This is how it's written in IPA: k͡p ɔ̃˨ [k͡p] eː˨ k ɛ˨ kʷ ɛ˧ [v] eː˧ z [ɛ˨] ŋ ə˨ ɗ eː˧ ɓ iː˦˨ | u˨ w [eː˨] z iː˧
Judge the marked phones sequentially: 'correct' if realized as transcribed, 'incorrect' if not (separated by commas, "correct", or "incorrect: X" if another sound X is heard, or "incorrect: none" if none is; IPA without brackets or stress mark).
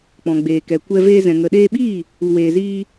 incorrect: ɡ͡b, correct, incorrect: ɛ̃˨, correct